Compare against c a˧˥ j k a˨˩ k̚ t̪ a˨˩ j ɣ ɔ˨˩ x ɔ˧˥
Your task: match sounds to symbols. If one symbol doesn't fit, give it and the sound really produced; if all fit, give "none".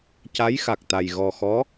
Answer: k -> x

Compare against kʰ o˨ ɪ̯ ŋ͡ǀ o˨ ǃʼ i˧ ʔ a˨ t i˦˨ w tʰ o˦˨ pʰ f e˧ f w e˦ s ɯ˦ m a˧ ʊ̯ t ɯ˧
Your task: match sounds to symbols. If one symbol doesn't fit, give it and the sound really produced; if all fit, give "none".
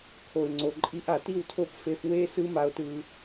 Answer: pʰ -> p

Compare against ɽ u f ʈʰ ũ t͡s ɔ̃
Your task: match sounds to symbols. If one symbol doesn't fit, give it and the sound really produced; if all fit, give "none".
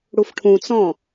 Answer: none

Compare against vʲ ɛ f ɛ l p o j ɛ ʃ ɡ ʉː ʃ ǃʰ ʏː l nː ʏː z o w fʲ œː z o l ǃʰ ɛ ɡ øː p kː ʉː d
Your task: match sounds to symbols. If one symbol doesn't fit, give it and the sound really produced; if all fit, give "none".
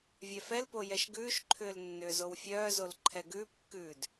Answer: øː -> ʉː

